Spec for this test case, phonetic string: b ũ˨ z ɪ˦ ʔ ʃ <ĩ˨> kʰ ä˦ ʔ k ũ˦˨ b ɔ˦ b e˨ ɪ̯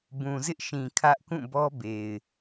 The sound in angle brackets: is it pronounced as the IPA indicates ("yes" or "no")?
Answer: yes